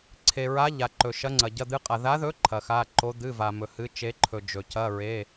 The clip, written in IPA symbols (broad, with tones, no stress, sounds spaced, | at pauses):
ǀʰ e˨ ɹ a˧˥ ʎ a˨ ǃ ɵ˨ ʃ ɐ˧˥ ŋ͡ǀ ɐ˨ ɟ ɐ˧˥˧ d̪ ɨ˧˥ qʼ a˨ ð a˧˥ ð ɵ˧˥ ǃʰ ɐ˨ x a˧˥˧ ǃ o˧˥ d̪ ɨ˧˥˧ v a˨ m ɵ˨ h ɨ˧˥ t͡ʃ e˧˥ ǃʰ ɵ˨ d͡ʒ ɵ˨ c ɐ˧˥˧ ɹ e˧˥˧